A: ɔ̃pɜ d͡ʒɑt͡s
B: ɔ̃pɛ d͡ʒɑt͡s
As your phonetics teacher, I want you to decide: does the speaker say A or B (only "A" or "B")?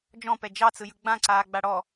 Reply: B